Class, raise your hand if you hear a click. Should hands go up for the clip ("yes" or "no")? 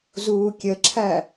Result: yes